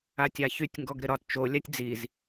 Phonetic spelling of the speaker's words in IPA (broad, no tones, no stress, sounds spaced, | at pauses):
a tʲ a ç y tʲ ŋ ɡ ɔ ɡ ɾ ɪ ɾ ɒ t t͡ʃ o lʲ a tʲ d͡z i z